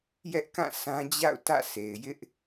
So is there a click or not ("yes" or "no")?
no